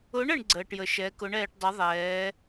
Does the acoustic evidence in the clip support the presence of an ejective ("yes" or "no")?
no